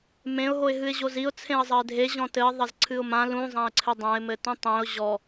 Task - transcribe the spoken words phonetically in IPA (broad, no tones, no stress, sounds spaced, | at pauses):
m ẽ ʊ̯ ɦ o ɪ̯ ɦ ɨ ɪ̯ ʑ o z i ʊ̯ t͡sʰ ẽ ə̯ zˤ ɐ ɪ̯ dʱ e ʑ ɔ̃ t ɘ ɪ̯ ðˤ ɐ z ǀʰ ɨ ʊ̯ m ã l ũ zˤ ã ɪ̯ ǀʰ ɘ dˤ ã ɪ̯ m ɘ t ũ tˤ ẽ ʊ̯ ʑ ɔ